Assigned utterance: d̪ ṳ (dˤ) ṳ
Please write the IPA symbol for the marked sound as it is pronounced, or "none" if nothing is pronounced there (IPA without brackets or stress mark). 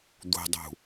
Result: dˤ